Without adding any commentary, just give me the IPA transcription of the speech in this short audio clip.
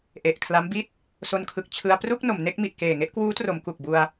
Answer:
ʔ e˨˩ ʔ kʰ l a˦˥ m b i˥˩ t̚ | s o˧ n kʰ ɯ˨˩ k̚ t͡ɕʰ ɯ˧ a̯ p r u˥˩ k̚ n o˩˦ m n e˦˥ k̚ m i˨˩ ʔ k eː˨˩ ŋ e˥˩ ʔ k w uː˦˥ t r o˩˦ m k u˨˩ k̚ b u˧ a̯

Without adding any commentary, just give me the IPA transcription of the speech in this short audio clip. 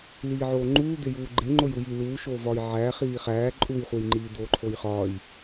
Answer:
l iː ʕ oː ŋ͡ǃ uː d̪ e j uː ɡ͡ǃ e ŋ͡ǃ o j u j i l uː ʃ oː v ɒː j ʕ æː χ iː χ æː ǃʼ u j χʷ e j ŋ͡ǃ iː d̪ oː ǃʰ o j χ ɒː j

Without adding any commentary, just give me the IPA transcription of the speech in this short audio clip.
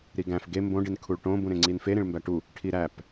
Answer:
ɾ i ɡ æ̃ f ɡ e m b õ ɖ i n kʰ u ɭ ʈ õ b ũ ɾ ẽ ŋ͡ǀ i n f e ɾ ĩ ɭ m b æ ʈ u | ʈʰ i ɾ æ p

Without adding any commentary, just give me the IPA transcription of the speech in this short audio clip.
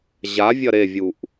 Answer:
ʑ a vʲ ɐ ɾ e vʲ u ʔ

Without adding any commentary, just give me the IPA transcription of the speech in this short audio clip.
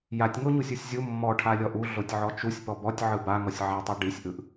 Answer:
j a tʲ ŋ o ɲ u sʲ u sʲ zʲ u mː ɔ ʈʰ a lʲ ɔ ʔ u ɮ o tʲ ʕ ɔ t͡ʃ u sʲ p ɔ b ɔ tʲ ʕ ɯ b a ŋ ɔ sʲ ʕ a tˤ ɯ ɖ i sʲ ʔ ɯ ʔ

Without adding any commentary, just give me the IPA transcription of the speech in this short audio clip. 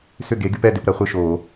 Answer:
s ʏ˥˨ ɡ e˨˥ ɡ y˨˥ p ɛ˥˨ d ɪ˧ p ɾ ɐ˨˥ χʷ ɪ˥˨ ʃ o˧˩˧

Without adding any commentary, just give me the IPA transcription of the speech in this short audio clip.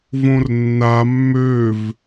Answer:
v õ r nː a mː ø v

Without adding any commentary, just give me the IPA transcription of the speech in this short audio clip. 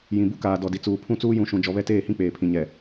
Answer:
j ĩ˨ b u˦ k aː˨ d ɔ˨ d i˨ t͡s uː˨ pʰ ũ˦˨ t͡s uː˦ j ũ˨˦ ʃ ũ˨ d͡ʒ ɔ˨ β ɛ˦ t eː˦˨ h ĩ˦ k͡p eː˨ pʰ ĩ˨ ɲ ɛ˨

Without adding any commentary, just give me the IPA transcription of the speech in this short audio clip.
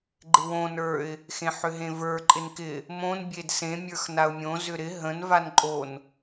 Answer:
ɡ͡ǃ ɪ w õ n ə˞ ɪ̯ | x ẽ ħ ʏ ɦ ẽ v ə˞ ǃʼ ɪ n k ɪ | m õ n bʲ e d s ẽ mʲ ə˞ x n a ʊ̯ mʲ õ z ʏ ɾ ɪ ɦ ə̃ n v a n ǃʼ o n

